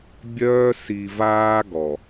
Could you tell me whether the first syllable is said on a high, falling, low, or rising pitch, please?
high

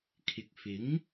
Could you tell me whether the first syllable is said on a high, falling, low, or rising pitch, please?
low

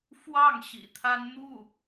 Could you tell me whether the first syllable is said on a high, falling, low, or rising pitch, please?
falling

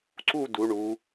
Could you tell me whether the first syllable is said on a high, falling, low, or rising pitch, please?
falling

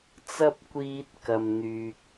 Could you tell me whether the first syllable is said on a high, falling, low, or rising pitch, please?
high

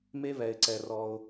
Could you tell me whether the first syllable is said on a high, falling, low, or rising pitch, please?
high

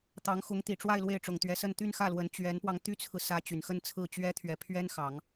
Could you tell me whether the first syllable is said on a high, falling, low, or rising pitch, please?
rising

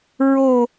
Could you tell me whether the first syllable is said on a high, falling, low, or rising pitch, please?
falling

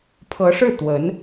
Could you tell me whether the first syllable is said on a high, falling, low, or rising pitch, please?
rising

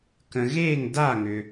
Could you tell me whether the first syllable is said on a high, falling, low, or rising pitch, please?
low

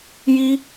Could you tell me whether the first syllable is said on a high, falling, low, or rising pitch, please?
high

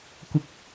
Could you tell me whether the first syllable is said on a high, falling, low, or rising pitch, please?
low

